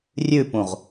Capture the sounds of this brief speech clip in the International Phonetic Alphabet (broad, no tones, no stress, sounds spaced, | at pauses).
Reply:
rʲ ʉ p ũ ʁ